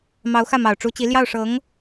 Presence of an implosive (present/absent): absent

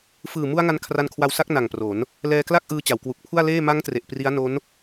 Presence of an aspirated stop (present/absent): present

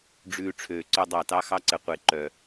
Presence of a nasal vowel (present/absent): absent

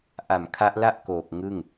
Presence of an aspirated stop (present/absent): present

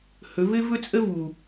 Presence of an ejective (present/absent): present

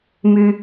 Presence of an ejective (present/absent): absent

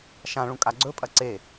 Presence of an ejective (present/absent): present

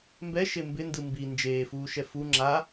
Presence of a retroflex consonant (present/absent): absent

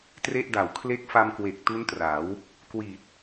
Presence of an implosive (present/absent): absent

